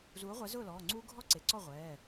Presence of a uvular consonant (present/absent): present